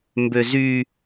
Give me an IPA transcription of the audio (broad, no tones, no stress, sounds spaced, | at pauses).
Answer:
m b ø z y